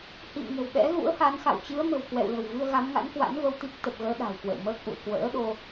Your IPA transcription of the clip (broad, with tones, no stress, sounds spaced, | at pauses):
h ḭ˧˨ m ŋ ə̤˨˩ w ɓ ɛ̰˧˥ ɣ ṵ˧˥ ə̯ h a˨˦ n x a̰˧˨ w t͡ɕ ɨ˨˦ ə̯ m ə̤˨˩ w k w ɛ̰˧˨ w l ə̤˨˩ w v ɨ˧ ə̯ ɣ a˨˦ m ŋ a̰˧˥ n k w a̰˧˥ n v ə˧ w t̪ i˦˥ k̚ t̪ ə˨˩ p̚ ɣ əː˨˦ ɗ a̤˨˩ w k w ə̰˧˨ w m əː˦˥ k̚ ʔ ṵ˧˨ ə̯ k w ə̰ː˧˥ ɗ o˧